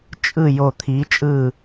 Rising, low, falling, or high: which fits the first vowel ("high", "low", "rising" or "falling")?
falling